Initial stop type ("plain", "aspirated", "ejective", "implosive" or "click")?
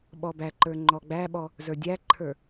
implosive